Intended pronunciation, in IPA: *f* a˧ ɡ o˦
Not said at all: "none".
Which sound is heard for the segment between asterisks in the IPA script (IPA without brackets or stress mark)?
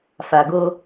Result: f